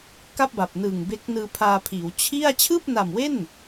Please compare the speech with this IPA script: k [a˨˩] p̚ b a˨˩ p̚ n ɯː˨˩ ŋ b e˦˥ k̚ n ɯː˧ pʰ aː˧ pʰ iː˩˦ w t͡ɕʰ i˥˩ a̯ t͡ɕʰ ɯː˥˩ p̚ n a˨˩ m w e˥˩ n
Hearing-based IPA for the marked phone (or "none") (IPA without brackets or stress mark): a˥˩